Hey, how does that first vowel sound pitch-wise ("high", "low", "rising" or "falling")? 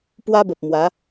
high